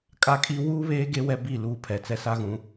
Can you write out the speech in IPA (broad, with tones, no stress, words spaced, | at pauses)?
kʼa˦kʼi˦ wuː˦βeː˦ ɡe˦ wɛ˦bi˦˨ luː˦˨pʰɛ˨ t͡sɛ˦sa˦ɣũ˨˦